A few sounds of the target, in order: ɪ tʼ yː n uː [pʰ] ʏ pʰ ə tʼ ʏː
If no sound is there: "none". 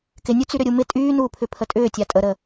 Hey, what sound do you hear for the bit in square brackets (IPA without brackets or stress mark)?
pʰ